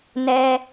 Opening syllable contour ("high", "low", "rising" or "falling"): high